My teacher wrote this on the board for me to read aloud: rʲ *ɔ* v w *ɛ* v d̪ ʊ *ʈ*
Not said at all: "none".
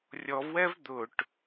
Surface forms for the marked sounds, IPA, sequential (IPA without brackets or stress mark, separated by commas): ɔ, ɛ, ʈ